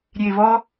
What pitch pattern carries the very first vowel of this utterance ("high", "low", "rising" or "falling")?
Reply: low